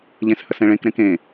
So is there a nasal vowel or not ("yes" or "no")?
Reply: yes